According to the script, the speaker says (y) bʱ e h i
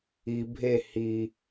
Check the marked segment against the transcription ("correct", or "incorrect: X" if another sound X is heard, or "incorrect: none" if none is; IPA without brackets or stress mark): incorrect: i